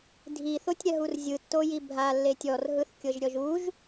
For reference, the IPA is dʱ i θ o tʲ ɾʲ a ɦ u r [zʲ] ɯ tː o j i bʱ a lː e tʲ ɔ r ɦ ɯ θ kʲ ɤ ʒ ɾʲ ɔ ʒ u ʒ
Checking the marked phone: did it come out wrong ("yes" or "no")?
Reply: no